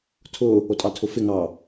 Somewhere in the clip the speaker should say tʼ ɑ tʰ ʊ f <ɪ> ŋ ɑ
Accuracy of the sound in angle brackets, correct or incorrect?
correct